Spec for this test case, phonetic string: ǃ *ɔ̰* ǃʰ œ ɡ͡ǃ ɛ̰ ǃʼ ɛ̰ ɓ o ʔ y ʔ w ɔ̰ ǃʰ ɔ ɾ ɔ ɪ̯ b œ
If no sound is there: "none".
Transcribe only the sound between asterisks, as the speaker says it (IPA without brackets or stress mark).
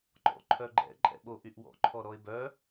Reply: ɔ̰